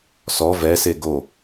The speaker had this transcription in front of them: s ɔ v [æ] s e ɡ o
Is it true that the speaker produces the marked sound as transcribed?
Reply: no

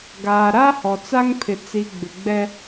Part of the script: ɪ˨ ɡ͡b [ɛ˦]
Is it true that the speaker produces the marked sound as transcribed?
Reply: yes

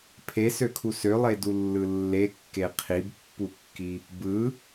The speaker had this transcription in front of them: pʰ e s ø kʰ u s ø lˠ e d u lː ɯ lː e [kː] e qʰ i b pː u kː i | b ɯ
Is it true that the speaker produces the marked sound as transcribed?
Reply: yes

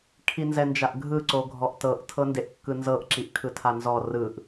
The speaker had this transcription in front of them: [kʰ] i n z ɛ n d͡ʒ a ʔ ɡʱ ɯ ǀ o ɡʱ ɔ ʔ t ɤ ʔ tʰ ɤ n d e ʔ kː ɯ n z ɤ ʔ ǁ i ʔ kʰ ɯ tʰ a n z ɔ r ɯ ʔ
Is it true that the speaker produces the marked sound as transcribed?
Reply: yes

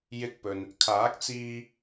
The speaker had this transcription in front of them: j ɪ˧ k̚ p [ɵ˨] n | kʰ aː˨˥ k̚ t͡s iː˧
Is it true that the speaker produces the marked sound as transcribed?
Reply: yes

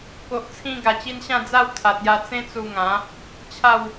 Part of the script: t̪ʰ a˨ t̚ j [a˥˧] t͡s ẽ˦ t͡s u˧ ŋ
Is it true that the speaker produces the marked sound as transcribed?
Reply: no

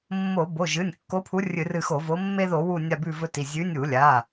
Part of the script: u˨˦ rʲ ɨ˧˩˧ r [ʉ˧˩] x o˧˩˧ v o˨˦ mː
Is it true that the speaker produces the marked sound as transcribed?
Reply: no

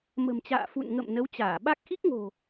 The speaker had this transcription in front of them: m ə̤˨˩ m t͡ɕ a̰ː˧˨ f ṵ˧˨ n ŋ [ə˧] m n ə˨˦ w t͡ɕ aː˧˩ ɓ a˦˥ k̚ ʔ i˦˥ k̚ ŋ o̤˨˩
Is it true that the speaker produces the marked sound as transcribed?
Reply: no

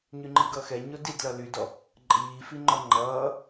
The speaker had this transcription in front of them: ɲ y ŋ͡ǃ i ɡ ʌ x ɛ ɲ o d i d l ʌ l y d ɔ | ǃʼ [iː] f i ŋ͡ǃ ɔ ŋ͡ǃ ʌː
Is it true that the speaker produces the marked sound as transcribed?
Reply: yes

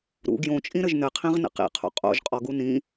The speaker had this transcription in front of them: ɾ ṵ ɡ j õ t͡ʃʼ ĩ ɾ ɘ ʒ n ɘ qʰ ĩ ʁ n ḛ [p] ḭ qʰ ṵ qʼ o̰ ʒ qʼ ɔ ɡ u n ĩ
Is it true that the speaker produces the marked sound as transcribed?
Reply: no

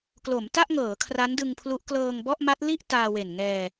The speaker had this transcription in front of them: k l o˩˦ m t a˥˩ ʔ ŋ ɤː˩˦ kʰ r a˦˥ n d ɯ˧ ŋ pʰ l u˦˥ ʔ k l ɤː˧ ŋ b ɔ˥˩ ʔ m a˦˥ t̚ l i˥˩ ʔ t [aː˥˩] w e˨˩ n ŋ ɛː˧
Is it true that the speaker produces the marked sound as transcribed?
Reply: no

